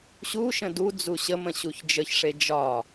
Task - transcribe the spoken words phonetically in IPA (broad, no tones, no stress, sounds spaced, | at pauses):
ɕ u ʃ ə̃ d u d͡z u ɕ ə m ə̃ ɕ u ç d͡ʒ ə ç ʂ e d͡ʒ ɒ